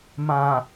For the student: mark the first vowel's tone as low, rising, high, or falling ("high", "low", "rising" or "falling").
low